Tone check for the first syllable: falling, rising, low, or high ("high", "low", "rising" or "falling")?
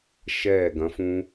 falling